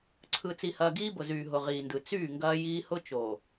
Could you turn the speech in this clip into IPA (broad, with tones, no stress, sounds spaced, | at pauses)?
ǀʰ ɯ˨ t͡s i˨ h ɐː˨ ɡ iː˦ b ʊ˨ z yː˨ ɦ ʊ˨ ʁ iː˨ n d ɯ˨ t͡s yː˦˨ ŋ ɡ ɐː˦ j iː˦ h ʊ˦ t͡ʃ oː˨